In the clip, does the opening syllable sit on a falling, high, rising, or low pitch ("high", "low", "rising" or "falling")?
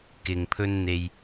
low